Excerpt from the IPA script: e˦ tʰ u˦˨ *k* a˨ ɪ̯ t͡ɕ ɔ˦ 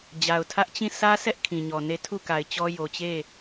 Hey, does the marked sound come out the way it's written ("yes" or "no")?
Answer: yes